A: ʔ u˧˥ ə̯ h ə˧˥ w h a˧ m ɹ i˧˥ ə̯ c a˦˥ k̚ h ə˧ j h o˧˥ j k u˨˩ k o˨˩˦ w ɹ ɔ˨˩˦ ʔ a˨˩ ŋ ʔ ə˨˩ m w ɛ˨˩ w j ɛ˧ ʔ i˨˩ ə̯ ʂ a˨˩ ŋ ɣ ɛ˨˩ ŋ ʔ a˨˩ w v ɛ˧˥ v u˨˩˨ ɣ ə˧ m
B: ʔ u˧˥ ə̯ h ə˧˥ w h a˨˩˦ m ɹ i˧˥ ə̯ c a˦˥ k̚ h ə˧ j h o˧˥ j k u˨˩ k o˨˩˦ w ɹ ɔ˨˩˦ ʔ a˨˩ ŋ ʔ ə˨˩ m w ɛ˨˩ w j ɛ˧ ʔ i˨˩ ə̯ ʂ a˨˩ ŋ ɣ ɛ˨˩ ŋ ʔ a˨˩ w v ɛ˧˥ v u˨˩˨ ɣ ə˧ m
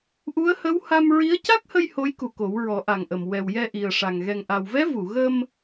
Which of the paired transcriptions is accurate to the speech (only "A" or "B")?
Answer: A